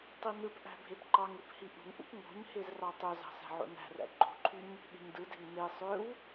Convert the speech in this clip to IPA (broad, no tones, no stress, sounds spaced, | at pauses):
tˤ i n ɯ p ʔ æ̤ bʱ e p ǃ ɑ ŋ ɯ p h i ʔ ṳ ŋ ʔ ṵ p ŋ o̤ ɲ h e z r ɑ tˤ ø z ɑ̤ s æ̤ ʕ o̰ n æ̤ r æ̰ ɡ͡ǃ o̤ ǃʰ y ɲ | ɓ e̤ ɲ d ɯ d e̤ ŋ n e sˤ ø w